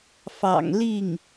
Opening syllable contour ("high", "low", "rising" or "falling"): low